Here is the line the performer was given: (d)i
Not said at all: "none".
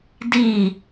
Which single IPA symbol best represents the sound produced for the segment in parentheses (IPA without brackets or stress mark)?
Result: d